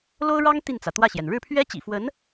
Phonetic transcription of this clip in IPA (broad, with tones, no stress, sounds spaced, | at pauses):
l o˥ ʊ̯ ɻ ɑ˥ ŋ t̪ i˥˩ n t͡s ä˩ t̪ w ä˥˩ ɕ j ɛ˩ n ɻ ɻ̩˥˩ pʰ ɥ ɛ˥ t͡ɕ ḭ˨˩ f w ə˧˥ n